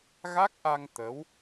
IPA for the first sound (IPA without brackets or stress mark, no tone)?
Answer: ɣ